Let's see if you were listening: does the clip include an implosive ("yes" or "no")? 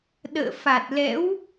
yes